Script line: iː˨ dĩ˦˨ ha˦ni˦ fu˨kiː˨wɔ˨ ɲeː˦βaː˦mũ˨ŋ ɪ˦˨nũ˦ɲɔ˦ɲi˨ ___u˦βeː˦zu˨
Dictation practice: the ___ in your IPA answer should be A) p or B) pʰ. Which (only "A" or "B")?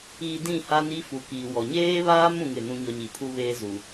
B